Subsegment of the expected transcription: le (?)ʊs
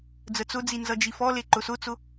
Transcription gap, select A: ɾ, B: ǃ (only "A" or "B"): B